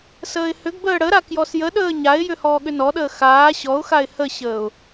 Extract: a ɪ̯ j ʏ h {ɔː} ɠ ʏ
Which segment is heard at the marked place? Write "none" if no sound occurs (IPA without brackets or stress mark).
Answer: ɔː